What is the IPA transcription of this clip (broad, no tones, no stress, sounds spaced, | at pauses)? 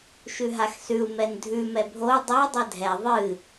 ʃ ʉ ɦ a x s ʉ u̯ m ɛ n dʱ ʉ m ɛ bʱ o u̯ dˤ ɛ dˤ ɛ dʱ ɛ ðˤ ɨ